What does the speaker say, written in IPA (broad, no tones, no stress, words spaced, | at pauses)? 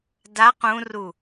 da qũru